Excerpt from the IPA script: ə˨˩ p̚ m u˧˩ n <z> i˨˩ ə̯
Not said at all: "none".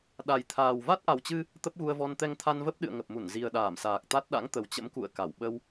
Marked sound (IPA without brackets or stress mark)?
z